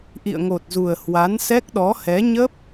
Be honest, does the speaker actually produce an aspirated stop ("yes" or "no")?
no